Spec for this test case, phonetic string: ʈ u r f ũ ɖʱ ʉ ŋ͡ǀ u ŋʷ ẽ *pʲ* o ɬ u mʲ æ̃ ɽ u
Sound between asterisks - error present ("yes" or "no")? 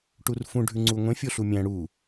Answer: yes